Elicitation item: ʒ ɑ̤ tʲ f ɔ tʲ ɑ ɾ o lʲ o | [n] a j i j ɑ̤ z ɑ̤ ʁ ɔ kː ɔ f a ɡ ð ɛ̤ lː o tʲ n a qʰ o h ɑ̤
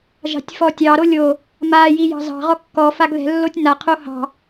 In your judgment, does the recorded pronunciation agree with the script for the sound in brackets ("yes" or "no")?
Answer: no